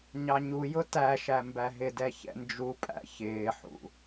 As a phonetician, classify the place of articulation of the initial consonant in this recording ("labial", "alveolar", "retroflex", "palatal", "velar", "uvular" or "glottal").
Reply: palatal